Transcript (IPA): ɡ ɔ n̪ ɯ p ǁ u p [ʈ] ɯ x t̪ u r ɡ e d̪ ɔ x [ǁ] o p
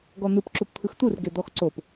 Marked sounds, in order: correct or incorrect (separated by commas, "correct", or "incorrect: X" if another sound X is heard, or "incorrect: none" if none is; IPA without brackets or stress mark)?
incorrect: t̪ʰ, incorrect: ǀ